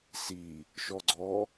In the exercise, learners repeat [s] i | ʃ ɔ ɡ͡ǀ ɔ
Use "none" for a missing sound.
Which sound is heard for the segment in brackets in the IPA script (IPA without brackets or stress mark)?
s